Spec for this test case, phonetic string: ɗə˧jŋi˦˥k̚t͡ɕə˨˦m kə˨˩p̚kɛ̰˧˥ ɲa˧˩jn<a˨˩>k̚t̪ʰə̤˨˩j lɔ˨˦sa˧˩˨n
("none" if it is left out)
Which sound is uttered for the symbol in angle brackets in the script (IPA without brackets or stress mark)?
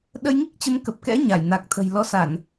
a˨˩